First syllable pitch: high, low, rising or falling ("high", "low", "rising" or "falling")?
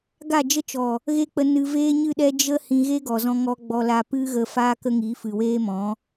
falling